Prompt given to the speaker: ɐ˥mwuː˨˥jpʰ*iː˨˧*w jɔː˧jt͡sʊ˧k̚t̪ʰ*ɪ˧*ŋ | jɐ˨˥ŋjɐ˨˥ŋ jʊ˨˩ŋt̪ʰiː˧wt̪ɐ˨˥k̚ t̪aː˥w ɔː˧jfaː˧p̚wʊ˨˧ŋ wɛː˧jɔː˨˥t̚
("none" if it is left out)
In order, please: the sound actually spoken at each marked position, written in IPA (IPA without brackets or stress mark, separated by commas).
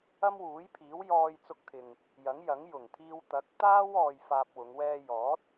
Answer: iː˨˥, ɪ˨